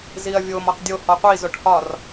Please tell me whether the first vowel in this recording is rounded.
no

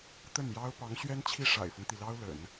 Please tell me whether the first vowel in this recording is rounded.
no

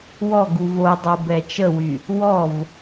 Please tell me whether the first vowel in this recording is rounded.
yes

